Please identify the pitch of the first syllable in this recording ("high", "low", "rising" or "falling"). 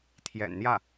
low